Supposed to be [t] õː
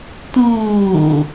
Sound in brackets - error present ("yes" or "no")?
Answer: no